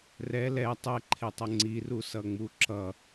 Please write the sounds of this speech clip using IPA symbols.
r ɛ l ɛ tˤ ɛ ǃʰ e tˤ ʌ ŋ͡ǀ i r u s ʌ ŋ͡m u ǁ ʌ

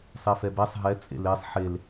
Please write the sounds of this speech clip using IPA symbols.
sˤ e f ɛ b ɛ sˤ ɦ ɛ t͡sʼ ḛ l e sˤ ħ e l

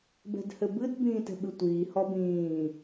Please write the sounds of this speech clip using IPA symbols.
b ɛ̤ d h ɘ b ɨ d b ĩː t ɛ̤ ɓ ɨ tʷ iː h ɔ b ĩː

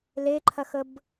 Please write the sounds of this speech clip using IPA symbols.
l e ǃʰ ɐ x ə b

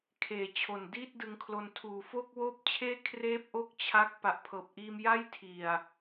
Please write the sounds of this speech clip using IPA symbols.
kʰ eː˨˩ t͡ɕʰ o˨˩ n d iː˥˩ t̚ d ɯ˧ ŋ kʰ l o˧ n tʰ uː˨˩ f o˥˩ k̚ w oː˥˩ p̚ t͡ɕʰ eː˥˩ kʰ r eː˥˩ p̚ ʔ o˥˩ k̚ t͡ɕʰ a˦˥ k̚ p a˨˩ ʔ pʰ ɤː˨˩ p̚ ʔ iː˧ m j a˥˩ j tʰ i˨˩ a̯

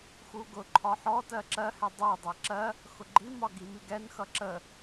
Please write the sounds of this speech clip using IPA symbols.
x u ɡ ʊ ǃʰ ɒ ħ ɔ t ɜ ǁ ɜ h ɛ dˤ ɜ dˤ æ ǁ ɜ | x ʊ ɡ͡ǃ i m ɒ ɡ i m i ɡ ɛ n x ʌ ǁ ə

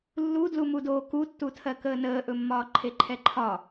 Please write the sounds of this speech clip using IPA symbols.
lː u d l u m u d oː k u tː u tʰ ɜ k əː n əː ʔ ɵ mː ɒː ǃʰ e ǃʰ ɛ ǃʰ ɒ

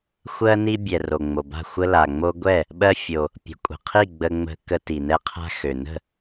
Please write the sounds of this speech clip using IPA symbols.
xʷ ɜ˦ n i˦ bʲ ɛ˨ r o˨ ŋ͡m o˨ b a̤˥˩ xʷ ə˦ l a˨ ŋ͡m o˦ ɡʷ ɛ˥˩ | ɓ ɜ˦ fʲ o˨ | pʲ ə̤˨ kʷʼ ə̤˨ qʰ i˥˩ ɡ͡b ə˦ ŋ͡m ə̤˦ k ə˦ t i˨ n ɛ˦ qʰ a̤˦ x ø˨ n ə̤˥˩

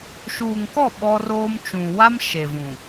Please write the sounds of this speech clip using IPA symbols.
ʃ uː˨ ŋ k ɔ˦˨ ɓ ɔ˦ r oː˦ m t͡ʃ ũ˨ w a˦ m ʃ e˨ v ũ˨

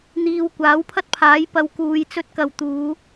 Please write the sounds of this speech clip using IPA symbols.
n̪ iː˧ w kʷ aː˨˥ w pʰ ɐ˥ t̚ pʰ aː˨˥ j p ɐ˧ w k uː˨˧ j t͡s ɵ˧ t̚ k ɐ˨ w t̪ uː˨˧

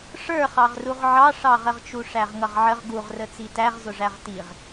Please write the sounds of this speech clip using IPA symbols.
ʂ ə˞ χ ɑ ʁ r u ʁ ʕ ɑ ʂ ɑ ʁ ə ʁ t͡ʃ u ʂ æ ʁ ŋ ʌ ʁ ʕ ə ʁ ɡ u ʁ r ə t͡s i t æ ʁ z ʊ ʐ æ ʁ t i ʁ

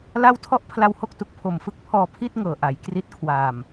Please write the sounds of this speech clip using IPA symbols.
l a˥˩ w tʰ ɔ˥˩ ʔ pʰ l a˧ w h o˦˥ k̚ t u˨˩ k̚ pʰ o˨˩ m f ɯ˦˥ k̚ pʰ ɔː˧ pʰ i˥˩ t̚ ŋ ɤː˨˩ ʔ a˩˦ j k r i˦˥ t̚ kʰ w aː˨˩ m

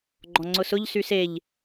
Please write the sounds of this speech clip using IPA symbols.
ɡ͡ǃ ɔ̃ ŋ͡ǀ ʊ s ʊ ʎ s y s e ʎ

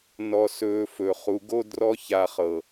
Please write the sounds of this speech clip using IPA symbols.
n ɔ˨ s ɵː˨ f ɵ˨ χ u˨ ɡ o˦ d r ɔ˦ ç a˨ χ ɤ˨

